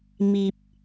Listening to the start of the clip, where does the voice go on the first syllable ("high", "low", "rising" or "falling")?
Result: low